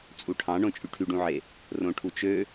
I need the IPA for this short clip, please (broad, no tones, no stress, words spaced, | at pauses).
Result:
t͡sʼuʈʰɑ̃ɳõ t͡ʃʼyʈʰyɖũʕe | rõʈʰut͡ʃø